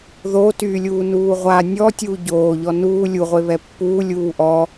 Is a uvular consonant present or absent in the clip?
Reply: present